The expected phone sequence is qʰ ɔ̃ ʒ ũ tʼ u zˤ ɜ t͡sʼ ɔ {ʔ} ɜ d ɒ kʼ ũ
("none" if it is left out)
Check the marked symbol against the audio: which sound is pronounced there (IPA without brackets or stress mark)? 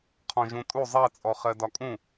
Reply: χ